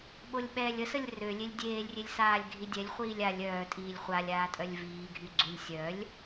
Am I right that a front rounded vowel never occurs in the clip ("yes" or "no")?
no